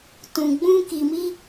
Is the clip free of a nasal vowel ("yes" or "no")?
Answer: no